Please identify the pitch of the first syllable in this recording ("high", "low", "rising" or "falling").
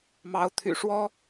rising